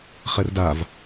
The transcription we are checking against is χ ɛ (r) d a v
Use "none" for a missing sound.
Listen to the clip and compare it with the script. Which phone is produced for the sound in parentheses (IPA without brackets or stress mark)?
r